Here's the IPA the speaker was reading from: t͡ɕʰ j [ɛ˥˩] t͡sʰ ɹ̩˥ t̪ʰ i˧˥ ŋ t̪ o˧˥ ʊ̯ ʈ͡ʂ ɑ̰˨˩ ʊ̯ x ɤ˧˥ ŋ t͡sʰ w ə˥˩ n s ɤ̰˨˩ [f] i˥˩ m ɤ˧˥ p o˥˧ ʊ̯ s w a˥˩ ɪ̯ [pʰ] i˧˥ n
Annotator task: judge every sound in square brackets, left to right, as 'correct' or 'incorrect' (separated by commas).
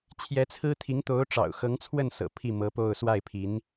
incorrect, incorrect, correct